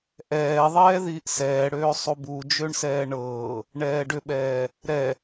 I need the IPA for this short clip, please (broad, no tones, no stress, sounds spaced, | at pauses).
ʔ ɛː ðˤ ɛː ð iː ʔ s ɛː ɽ øː sˤ u b u d͡ʒ ø ɳ s ɛː ɳ ɤː | ɳ ɛː ɖ ʏ ɓ ɛː | ɾ ɛ